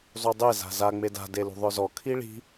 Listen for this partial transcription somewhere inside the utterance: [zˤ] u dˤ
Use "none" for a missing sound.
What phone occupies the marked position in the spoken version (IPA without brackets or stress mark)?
zˤ